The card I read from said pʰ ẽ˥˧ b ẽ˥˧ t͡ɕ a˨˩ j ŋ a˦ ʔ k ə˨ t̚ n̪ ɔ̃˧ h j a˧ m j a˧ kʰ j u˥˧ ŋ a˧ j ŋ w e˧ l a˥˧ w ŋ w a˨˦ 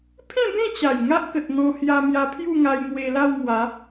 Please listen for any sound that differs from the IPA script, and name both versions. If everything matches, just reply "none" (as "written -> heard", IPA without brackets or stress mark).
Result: kʰ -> pʰ